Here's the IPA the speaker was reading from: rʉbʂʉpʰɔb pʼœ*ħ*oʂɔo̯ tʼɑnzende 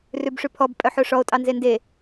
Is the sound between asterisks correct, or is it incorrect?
correct